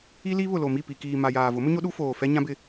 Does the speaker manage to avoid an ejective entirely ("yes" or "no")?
yes